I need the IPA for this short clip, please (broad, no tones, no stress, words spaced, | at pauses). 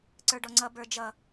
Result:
ǀə˞ɖɔŋ͡ǀʌ bə˞d͡ʒʌ